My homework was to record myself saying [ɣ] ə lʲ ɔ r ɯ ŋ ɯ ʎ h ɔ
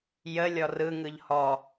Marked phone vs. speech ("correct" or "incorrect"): incorrect